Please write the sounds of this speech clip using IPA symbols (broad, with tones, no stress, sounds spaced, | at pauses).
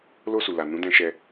l o˧ s u˨ l a˨ n ũ˨˦ d ɛ̃˧ ʃ ɛ˧